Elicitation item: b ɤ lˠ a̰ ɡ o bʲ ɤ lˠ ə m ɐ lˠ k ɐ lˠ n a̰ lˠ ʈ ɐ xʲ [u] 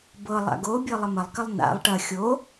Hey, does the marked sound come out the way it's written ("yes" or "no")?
no